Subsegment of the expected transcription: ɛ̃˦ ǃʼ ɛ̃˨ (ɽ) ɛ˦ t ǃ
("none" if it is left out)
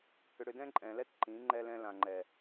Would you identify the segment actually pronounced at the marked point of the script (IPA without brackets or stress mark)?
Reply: l